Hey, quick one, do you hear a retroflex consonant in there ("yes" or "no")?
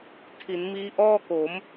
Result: no